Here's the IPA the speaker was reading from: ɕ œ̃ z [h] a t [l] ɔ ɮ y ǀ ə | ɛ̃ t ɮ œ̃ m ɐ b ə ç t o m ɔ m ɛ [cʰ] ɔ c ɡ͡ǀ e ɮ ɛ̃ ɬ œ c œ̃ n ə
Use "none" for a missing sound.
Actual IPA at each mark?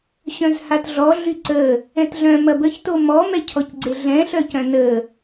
h, ɮ, cʰ

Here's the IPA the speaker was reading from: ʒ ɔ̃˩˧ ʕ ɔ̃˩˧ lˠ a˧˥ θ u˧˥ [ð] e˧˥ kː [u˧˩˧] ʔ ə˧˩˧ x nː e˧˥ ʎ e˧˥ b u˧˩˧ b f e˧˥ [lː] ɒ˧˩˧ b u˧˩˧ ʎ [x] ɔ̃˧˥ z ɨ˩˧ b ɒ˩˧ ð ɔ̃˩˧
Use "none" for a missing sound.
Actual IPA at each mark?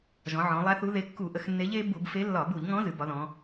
ð, u˧˩˧, lː, ŋ

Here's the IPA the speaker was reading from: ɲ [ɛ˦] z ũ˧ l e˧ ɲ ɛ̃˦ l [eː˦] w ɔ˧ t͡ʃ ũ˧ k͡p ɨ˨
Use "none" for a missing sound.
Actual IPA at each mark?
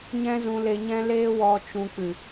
ɛ̃˦, eː˦

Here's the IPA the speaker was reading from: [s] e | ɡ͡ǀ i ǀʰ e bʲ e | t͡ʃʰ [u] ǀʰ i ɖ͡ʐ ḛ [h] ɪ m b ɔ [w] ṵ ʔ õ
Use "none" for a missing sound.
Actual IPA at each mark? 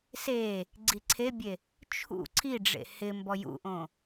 s, ṵ, h, j

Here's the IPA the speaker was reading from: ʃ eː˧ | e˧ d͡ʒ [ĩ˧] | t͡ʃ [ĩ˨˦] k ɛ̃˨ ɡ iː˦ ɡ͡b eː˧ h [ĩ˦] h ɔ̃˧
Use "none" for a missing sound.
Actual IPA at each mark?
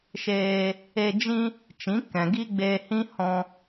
ĩ˦, ĩ˨˦, ĩ˦

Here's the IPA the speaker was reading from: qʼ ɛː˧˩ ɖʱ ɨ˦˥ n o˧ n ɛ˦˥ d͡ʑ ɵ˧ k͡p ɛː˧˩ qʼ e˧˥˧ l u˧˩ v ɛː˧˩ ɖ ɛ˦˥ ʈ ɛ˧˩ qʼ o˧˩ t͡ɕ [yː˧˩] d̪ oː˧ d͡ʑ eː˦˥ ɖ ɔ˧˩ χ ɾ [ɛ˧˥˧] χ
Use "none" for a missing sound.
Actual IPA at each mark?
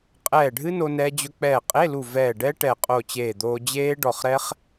eː˧˩, ɛ˦˥

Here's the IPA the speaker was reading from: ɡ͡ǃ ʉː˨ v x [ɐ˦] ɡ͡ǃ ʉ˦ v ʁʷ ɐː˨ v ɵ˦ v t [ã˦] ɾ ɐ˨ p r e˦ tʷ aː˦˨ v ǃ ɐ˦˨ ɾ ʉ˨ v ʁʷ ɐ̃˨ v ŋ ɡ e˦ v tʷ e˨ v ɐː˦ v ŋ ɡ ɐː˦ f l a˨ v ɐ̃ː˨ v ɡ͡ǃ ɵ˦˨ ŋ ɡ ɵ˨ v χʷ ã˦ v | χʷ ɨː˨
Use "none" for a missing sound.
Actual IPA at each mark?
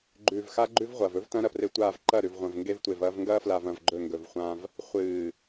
a˦, ɐ̃˦

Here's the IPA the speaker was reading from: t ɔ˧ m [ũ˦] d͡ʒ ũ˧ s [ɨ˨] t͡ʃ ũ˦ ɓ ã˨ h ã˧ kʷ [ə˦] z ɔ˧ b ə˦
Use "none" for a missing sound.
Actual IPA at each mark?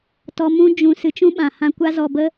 ũ˦, ɨ˨, a˦

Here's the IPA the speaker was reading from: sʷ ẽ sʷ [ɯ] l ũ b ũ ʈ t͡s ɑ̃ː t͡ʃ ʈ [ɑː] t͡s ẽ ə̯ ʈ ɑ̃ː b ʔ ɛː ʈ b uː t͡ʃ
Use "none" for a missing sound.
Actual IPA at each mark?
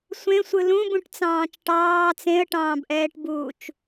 ɯ, ɑː

